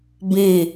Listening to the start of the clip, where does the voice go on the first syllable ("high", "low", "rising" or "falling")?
falling